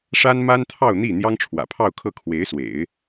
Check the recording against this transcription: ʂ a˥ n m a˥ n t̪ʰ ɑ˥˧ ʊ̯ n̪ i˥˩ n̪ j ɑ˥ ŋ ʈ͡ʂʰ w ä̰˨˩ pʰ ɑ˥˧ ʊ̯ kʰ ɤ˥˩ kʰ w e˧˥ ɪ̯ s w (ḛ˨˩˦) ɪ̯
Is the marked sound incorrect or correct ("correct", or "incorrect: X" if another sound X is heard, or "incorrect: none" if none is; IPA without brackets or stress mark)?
correct